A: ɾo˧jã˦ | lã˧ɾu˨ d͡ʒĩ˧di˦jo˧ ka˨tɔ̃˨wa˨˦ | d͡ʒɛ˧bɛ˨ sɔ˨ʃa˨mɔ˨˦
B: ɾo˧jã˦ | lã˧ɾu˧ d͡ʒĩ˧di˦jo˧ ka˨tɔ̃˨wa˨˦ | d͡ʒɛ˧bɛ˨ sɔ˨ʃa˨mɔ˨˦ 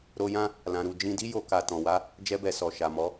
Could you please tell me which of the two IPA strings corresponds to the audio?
B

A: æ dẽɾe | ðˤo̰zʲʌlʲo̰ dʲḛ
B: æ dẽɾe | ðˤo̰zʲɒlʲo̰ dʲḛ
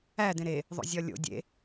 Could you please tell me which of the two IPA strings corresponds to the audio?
B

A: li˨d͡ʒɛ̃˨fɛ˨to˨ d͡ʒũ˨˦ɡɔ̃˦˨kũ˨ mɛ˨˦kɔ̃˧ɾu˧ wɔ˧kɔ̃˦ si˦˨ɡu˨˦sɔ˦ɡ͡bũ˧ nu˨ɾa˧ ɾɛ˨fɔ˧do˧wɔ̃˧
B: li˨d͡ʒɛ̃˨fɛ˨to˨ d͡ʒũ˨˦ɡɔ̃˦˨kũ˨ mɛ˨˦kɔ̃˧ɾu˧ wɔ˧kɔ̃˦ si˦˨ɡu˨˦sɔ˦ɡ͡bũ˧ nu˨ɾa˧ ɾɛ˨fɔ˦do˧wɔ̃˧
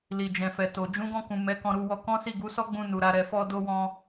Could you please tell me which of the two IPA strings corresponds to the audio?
A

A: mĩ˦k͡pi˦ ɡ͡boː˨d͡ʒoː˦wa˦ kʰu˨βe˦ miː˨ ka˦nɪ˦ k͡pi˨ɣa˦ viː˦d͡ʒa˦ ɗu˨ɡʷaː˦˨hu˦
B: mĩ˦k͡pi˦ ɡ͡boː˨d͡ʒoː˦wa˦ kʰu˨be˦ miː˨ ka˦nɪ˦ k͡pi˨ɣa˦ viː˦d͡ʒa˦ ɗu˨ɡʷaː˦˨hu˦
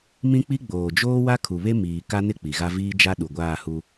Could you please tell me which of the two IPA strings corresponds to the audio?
A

